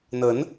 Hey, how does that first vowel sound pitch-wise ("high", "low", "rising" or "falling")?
rising